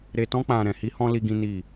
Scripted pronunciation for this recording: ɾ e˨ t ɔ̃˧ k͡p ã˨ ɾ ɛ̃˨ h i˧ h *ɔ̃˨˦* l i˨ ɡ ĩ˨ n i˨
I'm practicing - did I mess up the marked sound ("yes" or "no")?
yes